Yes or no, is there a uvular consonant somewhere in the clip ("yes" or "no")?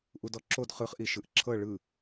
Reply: yes